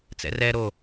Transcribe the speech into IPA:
t͡s ɛ̰ r ɛ ɾ o

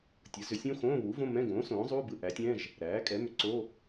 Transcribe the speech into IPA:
tʲ ɯ˩˥ z ʏ˩˥ sʲ õ˧˥˧ x õː˧˥˧ β uː˩˥ v õ˧˥˧ m ɛ̃˧˥˧ ɡ õː˩˥ s õː˩˥ zˤ uː˧˥˧ b ɯ˧˥˧ ʔ æ˩˥ tʲ ɛ̃ː˧˥˧ ʒ | ɾ æː˩˥ kʼ ɛ˩˥ m ʏ˩˥ ǀ o˧˥˧

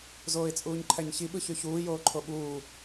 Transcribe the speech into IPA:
z oː ɪ̯ t͡sʼ uː ɲ ǃʰ æ ɲ ç i ɓ ɯ ç y ç uː j oː ǃʰ o ɓ uː

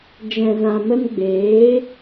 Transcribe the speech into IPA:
d͡ʒ ɛ̃˨ z ã˨ m ə˧ n ɡ͡b eː˨˦

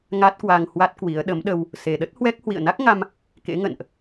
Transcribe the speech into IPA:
ŋ a˦˥ t̚ k w a˧ ŋ h w a˦˥ t̚ k w i˨˦ ə̯ ɗ ə˨˦ m ɗ ə˧ w | s e˨˩ ɗ ə˦˥ t̚ h w ɛ˦˥ k̚ h w ḭ˧˨ ə̯ n a˦˥ k̚ ŋ a˧ m | k ḛ˧˥ ŋ ə̰˧˨ n ʔ

